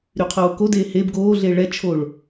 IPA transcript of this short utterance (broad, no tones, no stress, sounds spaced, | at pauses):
ɾ y qʰ oː k o d eː h e b ɡ oː ɮ e ɭ ɛ t͡ʃʰ o ɭ